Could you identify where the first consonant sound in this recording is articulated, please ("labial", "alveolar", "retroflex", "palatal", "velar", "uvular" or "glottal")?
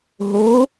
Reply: glottal